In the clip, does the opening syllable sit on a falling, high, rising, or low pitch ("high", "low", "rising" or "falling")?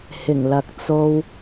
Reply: low